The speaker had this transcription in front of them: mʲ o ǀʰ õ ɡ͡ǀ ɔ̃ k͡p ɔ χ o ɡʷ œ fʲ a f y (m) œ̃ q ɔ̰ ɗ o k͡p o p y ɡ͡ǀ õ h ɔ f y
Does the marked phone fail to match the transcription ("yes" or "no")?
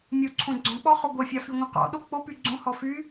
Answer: yes